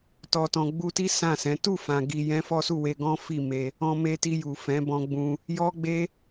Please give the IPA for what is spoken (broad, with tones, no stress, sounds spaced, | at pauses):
t ɔ˨ t ɔ̃˨ ɡ͡b u˧ t i˦ s ã˦˨ s ɛ̃˨˦ t u˦˨ f ã˨ ɡ i˧ j ɛ̃˦ f ɔ˦ s u˦˨ w e˧ ɡ ɔ̃˦ f i˦˨ m e˧ | ɔ̃˧ m e˧ t i˧ j u˨ f ɛ̃˨˦ b ɔ̃˧ ɡ͡b ũ˧ | j ɔ˦ ɡ͡b e˦